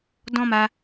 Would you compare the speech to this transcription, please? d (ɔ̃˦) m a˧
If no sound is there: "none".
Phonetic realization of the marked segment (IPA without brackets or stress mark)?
ɔ̃˦